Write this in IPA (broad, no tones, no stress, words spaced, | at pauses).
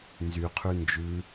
nzyqʰʉ nd͡ʒʉ